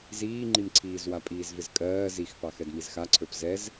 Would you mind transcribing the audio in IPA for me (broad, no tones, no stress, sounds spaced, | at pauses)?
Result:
z iː ŋ͡ǃ i m ǀʰ iː z w a pʼ iː z v ɪ z kʼ ɜː z i x p ɑ x ɛ d m i z x a ǀʰ ə˞ p z ɛ z